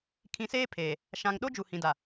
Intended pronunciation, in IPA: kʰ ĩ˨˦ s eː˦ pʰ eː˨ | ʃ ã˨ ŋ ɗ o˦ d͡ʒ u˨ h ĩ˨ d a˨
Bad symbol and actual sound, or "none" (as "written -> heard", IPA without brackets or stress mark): none